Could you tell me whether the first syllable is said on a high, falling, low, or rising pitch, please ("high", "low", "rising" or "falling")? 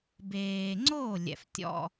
low